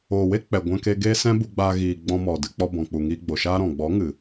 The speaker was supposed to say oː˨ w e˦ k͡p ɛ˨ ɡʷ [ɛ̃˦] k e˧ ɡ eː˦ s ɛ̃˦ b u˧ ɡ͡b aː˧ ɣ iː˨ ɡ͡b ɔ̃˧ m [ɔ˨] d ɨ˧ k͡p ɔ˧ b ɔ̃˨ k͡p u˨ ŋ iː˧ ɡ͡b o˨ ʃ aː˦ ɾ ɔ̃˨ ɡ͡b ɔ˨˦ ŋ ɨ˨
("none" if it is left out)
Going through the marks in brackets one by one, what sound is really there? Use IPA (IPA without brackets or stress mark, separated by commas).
ɛ̃˧, ɔ˨